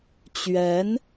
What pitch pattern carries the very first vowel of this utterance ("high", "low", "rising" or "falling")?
rising